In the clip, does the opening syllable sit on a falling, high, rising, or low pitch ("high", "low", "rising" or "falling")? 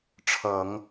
low